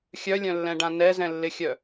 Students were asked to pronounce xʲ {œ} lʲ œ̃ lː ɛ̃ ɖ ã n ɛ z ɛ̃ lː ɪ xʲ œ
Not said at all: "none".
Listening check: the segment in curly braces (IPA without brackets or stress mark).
œ